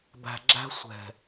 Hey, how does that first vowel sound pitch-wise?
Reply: low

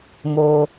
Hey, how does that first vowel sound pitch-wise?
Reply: low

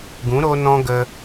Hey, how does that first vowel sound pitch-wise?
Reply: rising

